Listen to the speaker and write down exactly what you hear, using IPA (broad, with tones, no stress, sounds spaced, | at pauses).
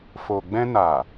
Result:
f o˨ ɡ͡b ɛ̃˧ n a˨